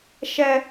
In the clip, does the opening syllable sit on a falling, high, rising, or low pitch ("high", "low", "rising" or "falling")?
high